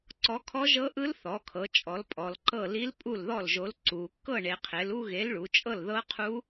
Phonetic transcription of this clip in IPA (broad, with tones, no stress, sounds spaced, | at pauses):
ǀ ɔ˨˥ kʰ ɔ˦˥ ʒ ɤ˦˥ ʔ ɯ˦˥ l θ ɔ˩˧ kʰ ɤ˩˧ t͡ʃʼ ɔ˩˧ l pʼ ɔ˩˧ l ǃ ɤ˥˩ l i˦˥ l pʼ u˥˩ l ð ɔ˥˩ l ʒ o˨˥ l ǀ u˩˧ kː ɤ˥˩ ɳ e˩˧ qʰ e˩˧ l u˥˧ ɣ e˨˥ l ɭ u˩˧ t͡ʃʼ ɤ˥˩ l ð ɤ˦˥ qʰ u˦˥